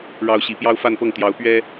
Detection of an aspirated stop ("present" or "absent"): absent